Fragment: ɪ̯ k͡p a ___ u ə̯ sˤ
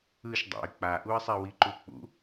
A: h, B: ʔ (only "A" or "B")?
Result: B